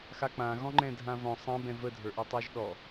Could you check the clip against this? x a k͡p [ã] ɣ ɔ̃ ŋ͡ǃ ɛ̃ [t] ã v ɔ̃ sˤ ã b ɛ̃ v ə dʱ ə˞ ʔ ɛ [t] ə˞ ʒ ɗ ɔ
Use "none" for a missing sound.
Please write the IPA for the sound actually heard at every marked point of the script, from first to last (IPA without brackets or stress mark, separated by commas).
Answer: ã, dʱ, tˤ